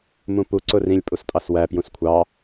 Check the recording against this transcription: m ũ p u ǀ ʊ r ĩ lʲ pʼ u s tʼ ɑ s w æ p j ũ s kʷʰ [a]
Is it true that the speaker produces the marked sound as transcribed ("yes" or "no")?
no